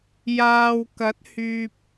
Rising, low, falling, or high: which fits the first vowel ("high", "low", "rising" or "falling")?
low